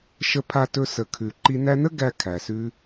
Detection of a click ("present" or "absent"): present